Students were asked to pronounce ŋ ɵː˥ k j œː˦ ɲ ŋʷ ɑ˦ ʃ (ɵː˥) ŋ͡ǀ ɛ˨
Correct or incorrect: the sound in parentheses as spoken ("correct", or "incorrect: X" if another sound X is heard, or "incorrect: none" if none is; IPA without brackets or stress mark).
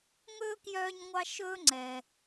correct